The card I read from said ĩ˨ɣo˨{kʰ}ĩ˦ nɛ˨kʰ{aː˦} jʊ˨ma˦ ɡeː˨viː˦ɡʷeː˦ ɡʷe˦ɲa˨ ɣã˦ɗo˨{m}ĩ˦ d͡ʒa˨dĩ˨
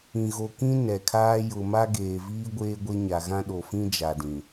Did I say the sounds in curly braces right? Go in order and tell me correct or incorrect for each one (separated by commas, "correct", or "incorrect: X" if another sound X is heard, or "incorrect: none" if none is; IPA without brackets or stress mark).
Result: incorrect: k, correct, incorrect: f